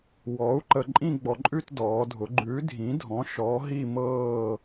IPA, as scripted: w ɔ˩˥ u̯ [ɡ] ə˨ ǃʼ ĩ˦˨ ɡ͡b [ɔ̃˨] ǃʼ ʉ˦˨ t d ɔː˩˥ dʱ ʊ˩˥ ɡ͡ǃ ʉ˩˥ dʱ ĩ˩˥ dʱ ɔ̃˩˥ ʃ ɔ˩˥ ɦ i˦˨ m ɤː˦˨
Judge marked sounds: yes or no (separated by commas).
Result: no, no